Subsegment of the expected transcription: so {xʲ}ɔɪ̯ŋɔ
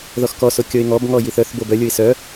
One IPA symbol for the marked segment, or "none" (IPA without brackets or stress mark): kʲ